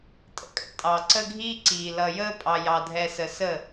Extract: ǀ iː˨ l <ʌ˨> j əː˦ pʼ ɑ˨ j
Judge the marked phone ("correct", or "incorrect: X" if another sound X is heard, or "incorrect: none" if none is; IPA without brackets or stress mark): correct